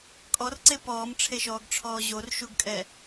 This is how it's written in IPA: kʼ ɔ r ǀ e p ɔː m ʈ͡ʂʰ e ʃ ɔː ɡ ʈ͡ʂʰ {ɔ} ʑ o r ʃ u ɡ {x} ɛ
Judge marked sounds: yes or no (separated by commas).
no, no